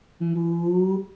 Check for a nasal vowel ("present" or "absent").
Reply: absent